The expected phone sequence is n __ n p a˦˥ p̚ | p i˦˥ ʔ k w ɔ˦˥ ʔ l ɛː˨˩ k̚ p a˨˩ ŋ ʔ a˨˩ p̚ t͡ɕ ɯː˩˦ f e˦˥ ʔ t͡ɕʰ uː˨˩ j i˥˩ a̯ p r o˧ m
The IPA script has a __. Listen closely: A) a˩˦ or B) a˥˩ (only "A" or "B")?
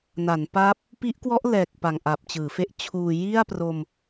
A